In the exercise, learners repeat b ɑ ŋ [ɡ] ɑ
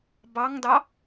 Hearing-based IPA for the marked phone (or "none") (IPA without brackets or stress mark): d